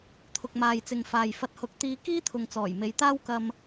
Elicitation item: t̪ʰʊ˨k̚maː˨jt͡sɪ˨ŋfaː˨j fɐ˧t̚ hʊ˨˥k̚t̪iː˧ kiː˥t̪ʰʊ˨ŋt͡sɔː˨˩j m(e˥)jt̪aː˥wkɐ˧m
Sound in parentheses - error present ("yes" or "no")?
yes